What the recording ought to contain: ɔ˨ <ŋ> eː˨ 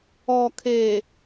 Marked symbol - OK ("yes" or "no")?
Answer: no